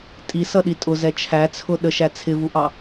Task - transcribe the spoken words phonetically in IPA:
tʼisʌɗi tʼʊzɛ t͡ʃʰæt͡sʰʊ ɗəʃæ t͡sʰɪvuʔɑ

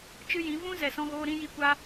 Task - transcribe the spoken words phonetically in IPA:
t͡ʃɨ˦jĩ˨˦ vũ˦ zɛ˨sɔ̃˧ɣoː˧ ɾĩ˧ji˧kʷa˧

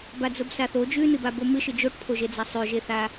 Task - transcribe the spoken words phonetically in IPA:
bad͡zobsaθo d͡ʒʉnɨbabo mɨʃɨ d͡ʒoʈpʰoʒed͡za sˤʉʒeθa

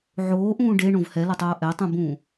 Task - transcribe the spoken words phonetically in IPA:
ʕoːʔũː ɖeɳõv hɛlʌtˤoː ʔɛtˤũbũː

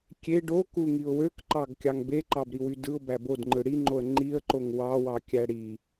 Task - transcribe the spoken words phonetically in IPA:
kʲe ɖokuŋiʊ̯ wøkǃɑɡ kʲɑŋbeǃɑb ɾiwydɯʊ̯ bæbodŋ͡ǃɯ ɽiŋ͡ǃoə̯ ŋ͡ǃiə̯ǃoŋ wɑwɑkʲæ ɽi

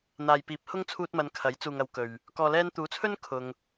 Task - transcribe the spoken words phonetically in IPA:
n̪aː˨j piː˨˥p̚hʊ˥ŋ t͡sʰuː˧t̚mɐ˨n kʰɐ˨˥jt͡suː˨ŋ ɐ˧wkɵ˨ɥ | kɔː˨lɛː˧nt̪uː˨˥t͡sʰɵ˥n kʰʊ˨ŋ

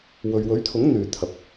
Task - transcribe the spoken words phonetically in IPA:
wɵ˨ɥwɵ˨˥ɥt̪ʰʊ˨˥ŋ n̪yː˨t̪ʰɐ˨p̚

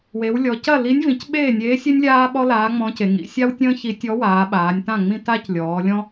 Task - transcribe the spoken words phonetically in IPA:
we˩˧wlʲɔ˩˧ cɐ˥˨li˧˥nʲ vĩ˩˧cɓeː˥˨nʲeː˧˥sʲe˥nʲ lʲaː˥ɓɔ˥ laː˧˥ŋ͡mɔ̃˧˥ce˩˧ ŋḭ˩˧sʲa˥wtʲə̃ː˥ çi˧˥ tʲɔ˧˥waː˩˧ ɓaː˩˧nʲtã˥˨ŋ͡mĩ˥ ta˥c lʲɔː˩˧lʲɔ̃˥

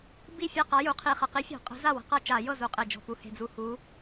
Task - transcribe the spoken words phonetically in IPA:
bi˥˩ fʲa˥˩qa˨˥ju˩˧ qʰi˨˩χə˨˩qi˨˥fʲɔ̤˧˩˧ qʼə̤˨˥za˥˩wə̤˩˧ qʌ˥˩ t͡ʃa˧˩˧jɤ˥˩zu˩˧ qʼe˨˩d͡ʒɔ̤˨˩pu˨˩ he̤˥˩d͡zu˥˩ hu˨˥

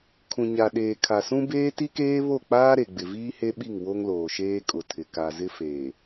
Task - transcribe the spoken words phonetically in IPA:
kʰũ˨ɲa˨ɗeː˨ kʰa˨sũ˦ beː˦ti˦keː˦βo˦˨ k͡paː˦ɾe˨ɡ͡bɪ˨ viː˦he˦ɓi˦˨ŋ wo˦ŋloː˨ʃeː˦ kʼʊ˨tʰɪ˨ ka˨zɪ˦ feː˨

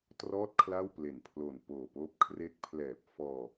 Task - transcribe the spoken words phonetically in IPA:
trɔː˥˩t̚kʰla˥˩wple˨˩npʰlo˨˩n poː˨˩poː˦˥p̚ kʰre˦˥k̚pʰlɛː˨˩p̚ fɔː˧

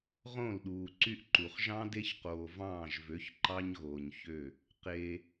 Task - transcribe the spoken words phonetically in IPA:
ʁõ˦˨lɗuː˨ǀy˦ʔǃu˨χ ʒɑ̃˦ de˦çqoː˨vɑ̃ː˦˨ʒvø˨˦ç ǃɑ˦ɲɣoː˨ɲçø˦˨ | qe˦

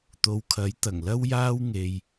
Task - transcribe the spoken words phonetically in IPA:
t̪o˨˧wkʰɐ˨˥j t̪ɐ˨˩ŋlɐ˥wjaː˥w ŋe˧j

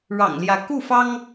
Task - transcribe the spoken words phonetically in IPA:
ɻɑ̰˨˩ŋljä˧˥ ku˥˩fɑ˥ŋ

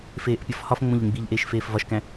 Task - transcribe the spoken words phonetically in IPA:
feːʔpʲɒfhɒfŋ͡mõʎ ɾĩɡ͡biʎʔeːʃ feːfvɒʃkæ̃

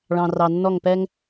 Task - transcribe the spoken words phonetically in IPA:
ɭɑ̃˨rɑ˨nːɔ˦˨ŋpɛ˦ŋ

